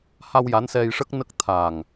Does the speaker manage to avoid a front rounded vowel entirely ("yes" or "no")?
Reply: yes